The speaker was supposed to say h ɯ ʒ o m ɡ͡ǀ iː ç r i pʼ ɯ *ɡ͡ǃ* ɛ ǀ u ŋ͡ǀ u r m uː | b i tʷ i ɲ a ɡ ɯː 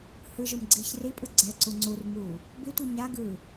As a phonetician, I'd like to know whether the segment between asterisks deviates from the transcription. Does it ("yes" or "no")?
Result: yes